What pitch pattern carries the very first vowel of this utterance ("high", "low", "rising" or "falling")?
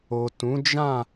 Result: low